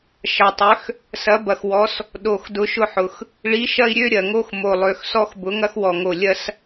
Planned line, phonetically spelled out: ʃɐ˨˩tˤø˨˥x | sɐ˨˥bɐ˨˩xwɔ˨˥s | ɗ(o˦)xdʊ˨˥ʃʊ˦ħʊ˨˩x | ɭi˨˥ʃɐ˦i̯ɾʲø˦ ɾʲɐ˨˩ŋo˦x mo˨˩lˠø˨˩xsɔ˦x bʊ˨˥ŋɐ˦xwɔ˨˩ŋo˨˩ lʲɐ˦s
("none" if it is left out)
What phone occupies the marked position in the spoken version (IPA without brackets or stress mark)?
o˨˩